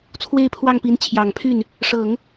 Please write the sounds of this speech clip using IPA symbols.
t͡sʰ w e˥˧ ɪ̯ pʰ w ɑ˥˩ ŋ p i˧˥ n t͡ɕʰ j ɑ˨˩ ŋ pʰ y˥˩ n | ʂ ɤ˨˩˦ ŋ

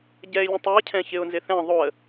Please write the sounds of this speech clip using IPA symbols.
ɟ ɛ ɪ̯ lʲ ẽ tˤ ɪ ə̯ cʰ ɛ̃ ç ɪ ʊ̯ n z ɪ θ ɛ̃ ðˤ o ə̯

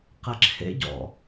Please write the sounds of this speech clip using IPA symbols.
q ɛ ǁʰ ḛ ɟ ɔ̰

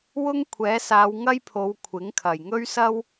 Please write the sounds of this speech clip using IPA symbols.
w ʊ˥ ŋ kʷʰ ɛː˨˥ s aː˨˧ w ŋ ɐ˥ j pʰ o˨˧ w kʷʰ ɪ˨˥ ŋ kʰ ɐ˨˩ j ŋ ɵ˥ ɥ s ɐ˥ w

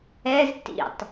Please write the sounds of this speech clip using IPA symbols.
ɛ z t ḭ tˤ

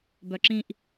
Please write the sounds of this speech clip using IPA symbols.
b œ ǁ ĩ ʔ

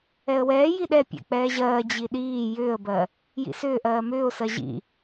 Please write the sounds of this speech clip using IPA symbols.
ɛ ə̯ w ɛː j i ɗ ɛ pʲ ɛ̰ k͡p ɛː ʑ ɜː d͡ʑ i ɗ iː j ʏː ə̯ b ɜ | j ḭ s ʏː ʔ ɜː m ʏː ʊ̯ s ɜ ʑ ḭ

